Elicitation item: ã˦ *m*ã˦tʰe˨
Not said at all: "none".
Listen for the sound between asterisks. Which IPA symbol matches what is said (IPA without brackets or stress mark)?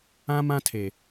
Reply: m